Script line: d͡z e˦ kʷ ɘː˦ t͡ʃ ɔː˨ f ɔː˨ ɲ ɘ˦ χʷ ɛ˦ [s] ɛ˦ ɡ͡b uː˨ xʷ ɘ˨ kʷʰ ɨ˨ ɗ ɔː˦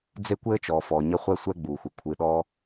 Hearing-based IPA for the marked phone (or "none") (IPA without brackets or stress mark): sʷ